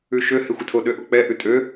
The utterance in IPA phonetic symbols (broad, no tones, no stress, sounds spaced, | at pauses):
ʉ ʃ ø h ɪ xʷ ɪ tʰ o ɗ ø ʔ o k͡p ɛ ʔ ʉ tʼ ø